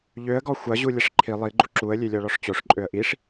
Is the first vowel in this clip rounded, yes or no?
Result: yes